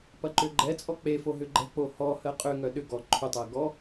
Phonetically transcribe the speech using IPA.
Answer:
p ɐ ǃ ʏ ɡ͡ǃ ɛ t͡sʼ ɔ k͡p e f o ɦ ʏ ɡ͡ǃ ɛ̤ k͡p o h ɔ h ɜ qʼ ʏ ŋ œ ɗ ʏ ɡ ɔ ǃʰ ʏ tˤ ɜ ɡ ɔ

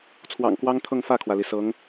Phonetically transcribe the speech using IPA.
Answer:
t͡sʰ w ɑ̰˨˩ ŋ k w ɑ˥ ŋ t̪ʰ ɤ˥˧ ŋ f ä˥˩ kʰ w ä˩ l i˩ s ɤ˧˥ ŋ

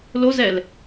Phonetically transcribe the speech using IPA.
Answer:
l o z ɛ l

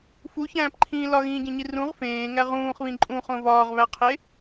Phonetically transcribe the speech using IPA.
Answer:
f u ç æ̃ː p ǃʰ ĩː l ɒ ɣ ĩː ɟ ẽ ɲ i r ũ ʁ f ẽː ŋ æ ʁ ũː χ β ĩ ǃʼ ũ χ õ v ɒː ʁ β æ qʰ e

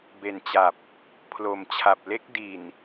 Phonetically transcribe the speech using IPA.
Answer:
b e˨˩ n t͡ɕ a˨˩ p̚ | pʰ l o˨˩ m t͡ɕʰ a˨˩ p̚ l e˦˥ k̚ d i˨˩ n

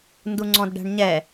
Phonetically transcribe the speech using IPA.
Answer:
n d u ŋ͡ǀ ɔ̃ d ɖ æ̤ ɳ ɲ ɛ

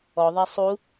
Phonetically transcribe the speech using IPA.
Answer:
ɔ ðˤ a sˤ u

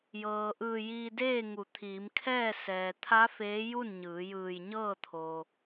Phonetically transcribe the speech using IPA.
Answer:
j ɤː˩ ʔ ɯː˧˩ j iː˧ d eː˥˨ ŋ u˩˧ t̪ʰ iː˩˧ m kʰ ɛː˥˨ s ɛː˩ t̪ʰ a˧˥ f eː˧˥ j u˥˨ n ɲ ɯː˩˧ j ɯː˧˩ j ɲ ɤː˥˨ t̪ʰ o˩

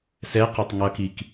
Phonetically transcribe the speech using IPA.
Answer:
s ɛ q i tˤ ŋ ʌ k i k

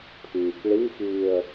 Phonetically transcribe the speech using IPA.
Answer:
pʰ iː k ɭ i x iː ə̯

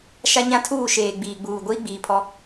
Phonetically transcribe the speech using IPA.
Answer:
ʃ a˦ ɲ ã˦ tʰ uː˦˨ ʃ eː˨ ɡ͡b iː˨ ɡ͡b uː˨ ɡʷ iː˦ ɡ͡b iː˨ pʰ ɔ˦

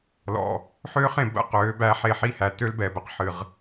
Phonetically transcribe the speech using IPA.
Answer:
l ɔ̰˨ | ħ øː˦ χ ẽ˨ b ə̰˦˨ q øː˨˦ b æ˦ ħ e˦˨ ħ i˦ h æ˨ t ø˦ l b ɛ˨ b ə˨ q ħ ɨ˨ ʁ

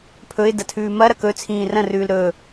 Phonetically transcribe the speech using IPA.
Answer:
pʰ ɵ ɪ̯ d ɐ tʰ ʉː m ɐ ɾ ɐ k ɵ t͡sʰ ĩː r ɐ̃ r ʉː l ɾ ɵ

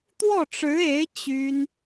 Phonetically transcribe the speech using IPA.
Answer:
t̪ w ɔ˥˩ ʈ͡ʂ ɻ̩˧˥ e˧˥ ɪ̯ t͡ɕ y˥ n

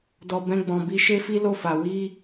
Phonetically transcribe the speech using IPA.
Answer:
d ɔ˧ b ɛ̃˧ ɡ͡b ɔ̃˨ b i˧ ʃ e˦ f i˦ l o˦˨ f a˨ w i˧

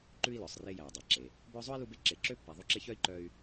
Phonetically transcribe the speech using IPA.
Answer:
ǃ ʉ˥ i̯ l œ˩ sˤ r e˦ j æ˩ y̯ dˤ æ˩ ǁ e˩ | b œ˦ zˤ o˥ i̯ l u˥ b e˥ ǁ e˨ ǁ ø˥ pː æ˨ ðˤ u˦ ǁ e˦ ç œ˥ i̯ ǃ œ˦ y̯

